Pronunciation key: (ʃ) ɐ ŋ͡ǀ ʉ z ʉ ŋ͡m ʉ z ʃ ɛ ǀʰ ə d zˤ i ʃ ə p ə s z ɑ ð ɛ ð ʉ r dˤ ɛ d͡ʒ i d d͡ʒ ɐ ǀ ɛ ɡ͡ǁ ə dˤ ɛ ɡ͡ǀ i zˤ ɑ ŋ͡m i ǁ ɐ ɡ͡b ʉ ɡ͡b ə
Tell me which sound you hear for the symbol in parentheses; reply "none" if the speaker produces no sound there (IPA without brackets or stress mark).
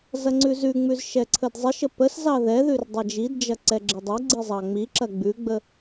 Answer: z